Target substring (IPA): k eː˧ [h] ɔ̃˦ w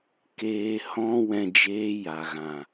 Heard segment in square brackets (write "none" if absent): h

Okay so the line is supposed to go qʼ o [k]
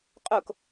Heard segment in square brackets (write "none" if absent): k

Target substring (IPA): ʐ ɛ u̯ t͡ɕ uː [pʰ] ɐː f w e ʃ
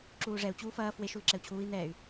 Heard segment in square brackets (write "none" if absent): f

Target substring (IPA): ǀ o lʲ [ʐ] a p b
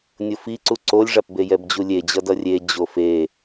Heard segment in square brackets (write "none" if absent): ʐ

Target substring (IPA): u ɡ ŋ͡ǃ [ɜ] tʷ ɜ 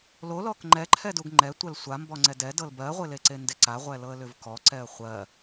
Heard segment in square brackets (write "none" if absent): ɛ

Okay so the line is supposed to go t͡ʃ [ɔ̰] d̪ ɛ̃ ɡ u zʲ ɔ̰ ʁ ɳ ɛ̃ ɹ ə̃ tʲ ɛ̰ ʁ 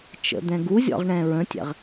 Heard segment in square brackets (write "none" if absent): ə̰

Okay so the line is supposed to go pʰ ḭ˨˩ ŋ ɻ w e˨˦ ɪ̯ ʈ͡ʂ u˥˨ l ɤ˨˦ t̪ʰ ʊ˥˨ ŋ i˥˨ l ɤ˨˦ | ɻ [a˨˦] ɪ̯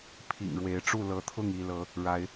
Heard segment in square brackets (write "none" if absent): a˨˦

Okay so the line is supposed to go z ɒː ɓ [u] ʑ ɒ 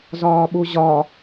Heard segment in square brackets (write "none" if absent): u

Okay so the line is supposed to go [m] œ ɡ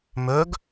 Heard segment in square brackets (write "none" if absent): m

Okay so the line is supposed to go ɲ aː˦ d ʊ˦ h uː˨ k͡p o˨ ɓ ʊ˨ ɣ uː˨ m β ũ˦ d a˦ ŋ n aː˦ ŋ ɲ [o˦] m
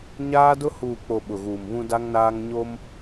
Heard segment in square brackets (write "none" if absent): o˦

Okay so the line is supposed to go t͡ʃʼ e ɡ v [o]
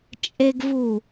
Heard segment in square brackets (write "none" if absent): u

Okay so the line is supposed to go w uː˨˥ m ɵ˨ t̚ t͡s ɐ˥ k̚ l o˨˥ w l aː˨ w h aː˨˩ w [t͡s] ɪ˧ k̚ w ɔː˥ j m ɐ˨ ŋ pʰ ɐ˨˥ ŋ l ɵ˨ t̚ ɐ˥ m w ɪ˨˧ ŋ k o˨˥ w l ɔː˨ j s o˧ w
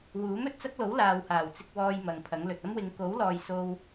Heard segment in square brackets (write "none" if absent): t͡s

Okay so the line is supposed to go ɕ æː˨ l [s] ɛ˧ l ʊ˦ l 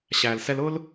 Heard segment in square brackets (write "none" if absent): s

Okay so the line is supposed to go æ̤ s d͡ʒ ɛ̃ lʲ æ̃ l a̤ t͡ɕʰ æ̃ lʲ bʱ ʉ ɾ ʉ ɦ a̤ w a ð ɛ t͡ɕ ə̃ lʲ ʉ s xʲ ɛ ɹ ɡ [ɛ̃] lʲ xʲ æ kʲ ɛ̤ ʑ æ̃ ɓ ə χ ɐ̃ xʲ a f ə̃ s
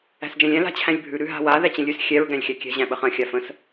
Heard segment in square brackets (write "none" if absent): æ̃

